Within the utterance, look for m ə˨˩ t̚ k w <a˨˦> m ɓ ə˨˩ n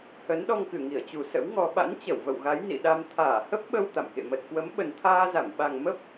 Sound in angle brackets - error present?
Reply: yes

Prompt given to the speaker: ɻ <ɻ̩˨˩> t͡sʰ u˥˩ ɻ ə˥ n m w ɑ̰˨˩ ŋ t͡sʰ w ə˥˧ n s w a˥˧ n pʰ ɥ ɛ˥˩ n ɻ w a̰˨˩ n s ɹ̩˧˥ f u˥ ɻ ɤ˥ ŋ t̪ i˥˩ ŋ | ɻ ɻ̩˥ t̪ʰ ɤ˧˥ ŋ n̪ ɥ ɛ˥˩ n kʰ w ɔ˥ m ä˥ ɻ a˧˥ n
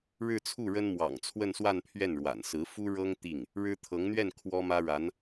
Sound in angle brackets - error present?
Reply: yes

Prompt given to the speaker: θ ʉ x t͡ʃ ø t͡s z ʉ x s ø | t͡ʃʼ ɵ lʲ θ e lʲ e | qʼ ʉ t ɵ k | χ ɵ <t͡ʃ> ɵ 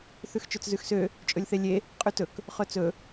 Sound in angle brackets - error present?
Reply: yes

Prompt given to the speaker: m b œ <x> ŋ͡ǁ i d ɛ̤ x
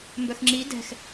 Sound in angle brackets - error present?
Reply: no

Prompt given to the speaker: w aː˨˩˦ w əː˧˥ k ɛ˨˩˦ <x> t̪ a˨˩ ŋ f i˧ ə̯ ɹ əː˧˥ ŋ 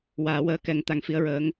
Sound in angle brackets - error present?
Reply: yes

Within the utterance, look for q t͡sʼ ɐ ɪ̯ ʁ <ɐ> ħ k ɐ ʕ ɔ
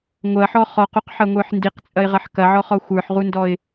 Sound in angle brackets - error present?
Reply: no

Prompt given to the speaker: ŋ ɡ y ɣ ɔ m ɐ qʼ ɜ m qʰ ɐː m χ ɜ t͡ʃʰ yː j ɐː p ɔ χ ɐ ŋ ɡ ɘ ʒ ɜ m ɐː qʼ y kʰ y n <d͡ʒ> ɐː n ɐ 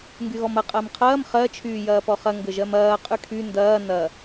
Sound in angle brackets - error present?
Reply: yes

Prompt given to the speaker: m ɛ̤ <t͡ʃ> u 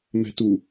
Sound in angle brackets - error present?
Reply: yes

